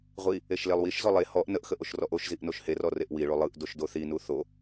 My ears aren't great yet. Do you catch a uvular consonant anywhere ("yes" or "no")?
yes